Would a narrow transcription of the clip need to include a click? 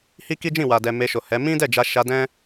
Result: no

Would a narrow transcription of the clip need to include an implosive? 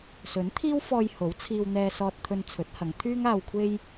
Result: no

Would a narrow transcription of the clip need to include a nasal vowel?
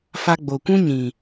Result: yes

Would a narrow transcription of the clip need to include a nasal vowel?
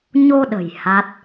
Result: no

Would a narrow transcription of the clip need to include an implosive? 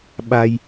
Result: yes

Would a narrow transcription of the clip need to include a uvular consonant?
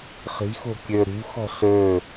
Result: yes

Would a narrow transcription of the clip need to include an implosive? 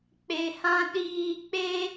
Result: yes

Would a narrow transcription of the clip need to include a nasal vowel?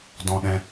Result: yes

